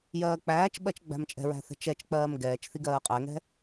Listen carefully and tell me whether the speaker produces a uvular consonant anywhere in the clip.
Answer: yes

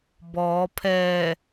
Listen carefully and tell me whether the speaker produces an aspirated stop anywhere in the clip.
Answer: yes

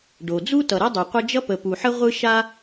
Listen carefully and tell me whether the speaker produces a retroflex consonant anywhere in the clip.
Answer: yes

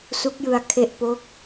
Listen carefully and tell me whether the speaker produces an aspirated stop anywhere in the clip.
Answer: yes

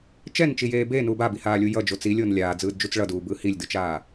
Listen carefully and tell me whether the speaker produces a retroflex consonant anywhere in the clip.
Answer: yes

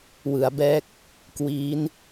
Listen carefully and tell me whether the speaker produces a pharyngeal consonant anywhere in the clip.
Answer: no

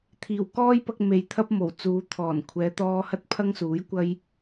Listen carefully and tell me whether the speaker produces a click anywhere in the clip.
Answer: no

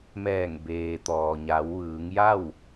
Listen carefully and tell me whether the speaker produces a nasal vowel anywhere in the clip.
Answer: no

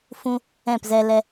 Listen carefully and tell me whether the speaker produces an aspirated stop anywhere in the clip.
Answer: no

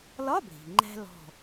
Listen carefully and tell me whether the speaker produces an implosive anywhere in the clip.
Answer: no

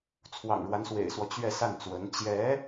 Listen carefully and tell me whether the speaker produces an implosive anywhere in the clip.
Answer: no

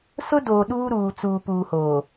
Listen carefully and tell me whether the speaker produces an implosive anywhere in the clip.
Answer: yes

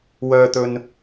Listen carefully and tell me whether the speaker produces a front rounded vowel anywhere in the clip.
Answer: yes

